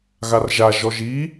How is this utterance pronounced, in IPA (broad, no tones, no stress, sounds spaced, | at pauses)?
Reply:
ɣ a r ʒ a ʒ ɔ ʒ i